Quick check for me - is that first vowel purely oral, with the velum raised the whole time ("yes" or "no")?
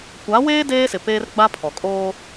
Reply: yes